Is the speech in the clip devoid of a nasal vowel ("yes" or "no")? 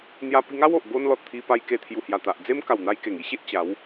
yes